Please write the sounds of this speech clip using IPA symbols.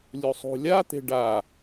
lʲ u sˤ ṳ lʲ a t̪ e̤ ɖ a

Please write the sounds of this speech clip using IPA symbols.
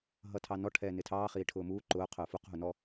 ɦ ʌ tʰ ɑ n ɔ ʈʰ ɛː n ɪ tʰ ɑː χ iː ʈʰ ʊː m uː ǃ ʊː qʰ ʊː f u q ɦ u n ɔ

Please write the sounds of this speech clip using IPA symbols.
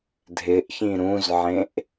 dʱ ɪ ʔ ç ĩ ɾ ũ z ʕ ẽ ʔ

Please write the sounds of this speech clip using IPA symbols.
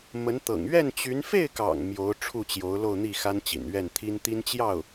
m ə˧˥ n t̪ ɤ̰˨˩ ŋ ɥ ɛ˥˩ n t͡ɕ y˧˥ n f e˥˩ ɪ̯ k ɑ̰˨˩ ŋ m j o˧˥ ʊ̯ ʈ͡ʂʰ u˥˩ t͡ɕ j o˧˥ ʊ̯ l o˥˧ ʊ̯ n̪ i˥˩ x a˥ n t͡ɕ ḭ˨˩ n ɥ ɛ˥˩ n t̪ʰ i˥ n t̪ i˥ n t͡ɕ j ɑ˥˩ ʊ̯

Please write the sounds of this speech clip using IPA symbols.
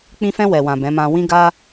k͡p ĩ˧ f ɛ̃˧ w ɛ˨ w ã˨ b ɛ̃˨˦ m ã˧ w ĩ˦ ɡ a˦

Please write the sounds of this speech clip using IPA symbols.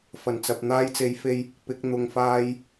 f ɐ˨˩ n t͡s ɐ˨ p̚ n̪ aː˧ j t͡s e˨˧ j f e˧ j | p ɪ˨˥ k̚ n̪ ʊ˨ ŋ f aː˧ j

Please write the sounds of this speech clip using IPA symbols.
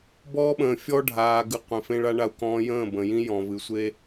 b ɔː˦ ɓ ə̃ː˨ fʲ ɔ˦ ɖʱ aː˨ ɡ ɨ˨ qʷ ẽ˨ f ẽ˦ ɭ a˦ ɳ a˦ u̯ k ɔ̃ː˦ j ə̃ː˦˨ b ə̃˨ j ĩ˦ j ɔ̃˨ v ɨ˨ sʷ e˦

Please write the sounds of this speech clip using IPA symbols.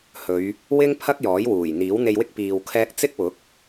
h ɵ˨˧ ɥ | w ɪ˥ ŋ pʰ ɐ˥ k̚ j ɔː˨˥ j w uː˨˩ j n̪ iː˨˥ w n̪ e˧ j w ɪ˥ k̚ p iː˧ w kʰ ɛː˥ k̚ t͡s ɪ˥ k̚ w ʊ˨˥ k̚

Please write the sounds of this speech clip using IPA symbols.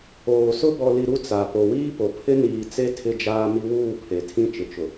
oː˨ s ʊ˦ b ɔ˨ l i˨ ɾ u˦ t͡s a˨ p o˨ w iː˦ p o˨ pʰ ɪ˦ n iː˨ t͡s e˦ tʰ ɪ˦ d͡ʒ aː˦ m i˦ w uː˦˨ pʰ e˨ tʰ ĩ˦ t͡ʃ ɪ˨ t͡ʃ ʊ˨

